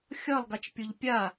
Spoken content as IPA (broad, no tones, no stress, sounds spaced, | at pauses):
xʲ ʌ lˠ ɡ a t͡ʃ pʲ o ʎ pʲ a